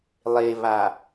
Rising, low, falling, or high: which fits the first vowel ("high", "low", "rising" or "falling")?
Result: low